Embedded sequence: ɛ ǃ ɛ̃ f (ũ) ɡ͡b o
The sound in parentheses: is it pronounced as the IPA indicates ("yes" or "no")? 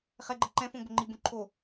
no